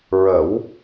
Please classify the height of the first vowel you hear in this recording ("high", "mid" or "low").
mid